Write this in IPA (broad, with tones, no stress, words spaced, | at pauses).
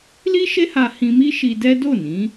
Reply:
li˦ʃe˦ha˧ hĩ˧mi˦ ʃi˧dɛ˦ do˦˨nĩ˨˦